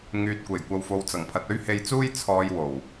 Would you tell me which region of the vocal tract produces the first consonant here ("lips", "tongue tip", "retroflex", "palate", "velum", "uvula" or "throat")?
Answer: velum